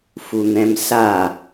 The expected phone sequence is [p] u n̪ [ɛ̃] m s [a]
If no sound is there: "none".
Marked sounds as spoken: f, ɛ̃, a

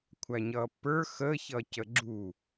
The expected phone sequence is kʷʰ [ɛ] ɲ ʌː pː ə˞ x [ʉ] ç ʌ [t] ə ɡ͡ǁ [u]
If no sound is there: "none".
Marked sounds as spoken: æ, ə, c, u

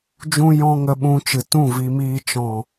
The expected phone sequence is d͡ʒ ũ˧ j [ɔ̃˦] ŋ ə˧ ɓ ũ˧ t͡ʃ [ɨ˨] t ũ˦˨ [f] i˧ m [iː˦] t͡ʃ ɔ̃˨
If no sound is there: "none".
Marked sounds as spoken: ɔ̃˦, ɨ˨, v, iː˧

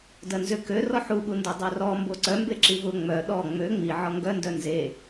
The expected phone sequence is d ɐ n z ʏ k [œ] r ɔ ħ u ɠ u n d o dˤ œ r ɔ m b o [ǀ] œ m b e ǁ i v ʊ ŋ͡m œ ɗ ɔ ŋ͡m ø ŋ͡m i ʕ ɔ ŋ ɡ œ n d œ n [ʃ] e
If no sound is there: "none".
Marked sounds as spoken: ø, ǀ, z

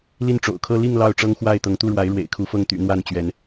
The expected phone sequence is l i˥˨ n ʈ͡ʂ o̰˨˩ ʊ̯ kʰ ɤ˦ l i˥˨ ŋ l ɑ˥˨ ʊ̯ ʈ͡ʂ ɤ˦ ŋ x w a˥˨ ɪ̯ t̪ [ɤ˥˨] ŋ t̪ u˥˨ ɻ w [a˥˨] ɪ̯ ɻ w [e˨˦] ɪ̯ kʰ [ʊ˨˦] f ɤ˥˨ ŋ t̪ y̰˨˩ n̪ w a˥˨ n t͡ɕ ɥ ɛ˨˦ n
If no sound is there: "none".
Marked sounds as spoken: ɤ˨˦, a˨˦, ḛ˨˩, u˨˦

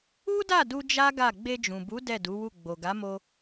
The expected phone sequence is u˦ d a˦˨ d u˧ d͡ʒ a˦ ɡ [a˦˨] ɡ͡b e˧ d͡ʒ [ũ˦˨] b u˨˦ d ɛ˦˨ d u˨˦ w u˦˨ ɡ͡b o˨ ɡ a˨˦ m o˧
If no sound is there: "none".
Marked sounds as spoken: a˦˨, ũ˨

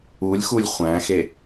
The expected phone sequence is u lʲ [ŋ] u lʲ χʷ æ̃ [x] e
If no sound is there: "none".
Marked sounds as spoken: x, x

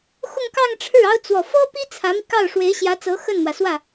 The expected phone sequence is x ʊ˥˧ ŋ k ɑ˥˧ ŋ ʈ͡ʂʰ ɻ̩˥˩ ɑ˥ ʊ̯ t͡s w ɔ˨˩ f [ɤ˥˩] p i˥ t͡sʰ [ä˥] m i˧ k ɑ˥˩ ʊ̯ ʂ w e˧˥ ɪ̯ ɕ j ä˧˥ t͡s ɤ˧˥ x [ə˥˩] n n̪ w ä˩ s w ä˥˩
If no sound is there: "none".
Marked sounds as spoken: ɤ˥, ä˧˥, ə˥˩

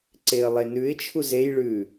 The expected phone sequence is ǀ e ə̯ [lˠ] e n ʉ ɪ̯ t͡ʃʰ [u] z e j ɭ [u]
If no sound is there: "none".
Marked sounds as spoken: lˠ, u, ʉ

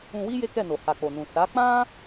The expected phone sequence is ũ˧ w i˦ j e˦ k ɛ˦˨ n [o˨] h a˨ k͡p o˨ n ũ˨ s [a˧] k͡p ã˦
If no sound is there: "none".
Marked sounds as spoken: o˨, a˨˦

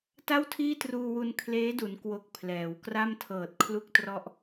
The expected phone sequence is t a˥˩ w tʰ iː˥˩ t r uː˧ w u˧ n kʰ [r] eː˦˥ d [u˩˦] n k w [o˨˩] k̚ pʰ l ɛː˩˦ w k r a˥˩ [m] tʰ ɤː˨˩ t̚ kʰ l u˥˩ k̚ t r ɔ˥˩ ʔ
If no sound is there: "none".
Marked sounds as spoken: l, u˩˦, o˨˩, m

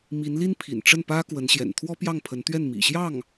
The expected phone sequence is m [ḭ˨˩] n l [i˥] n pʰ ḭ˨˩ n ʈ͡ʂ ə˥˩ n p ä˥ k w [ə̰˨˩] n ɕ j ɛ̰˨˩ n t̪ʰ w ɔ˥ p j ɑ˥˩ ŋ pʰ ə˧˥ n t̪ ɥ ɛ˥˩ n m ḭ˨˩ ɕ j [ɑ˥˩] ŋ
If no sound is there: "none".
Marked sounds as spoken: i˧˥, i˥, ə˧˥, ɑ˥˩

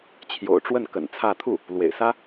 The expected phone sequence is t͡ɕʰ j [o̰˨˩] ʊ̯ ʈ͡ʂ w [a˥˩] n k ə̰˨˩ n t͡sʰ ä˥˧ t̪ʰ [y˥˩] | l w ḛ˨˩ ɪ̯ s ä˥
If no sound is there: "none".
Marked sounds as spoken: o̰˨˩, ə˥˩, u˥˩

